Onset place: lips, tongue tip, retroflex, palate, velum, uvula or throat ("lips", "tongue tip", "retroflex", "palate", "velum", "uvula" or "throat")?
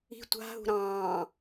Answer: tongue tip